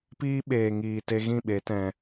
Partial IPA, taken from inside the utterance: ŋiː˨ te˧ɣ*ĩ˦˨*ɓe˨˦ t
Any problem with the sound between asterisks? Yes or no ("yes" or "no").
no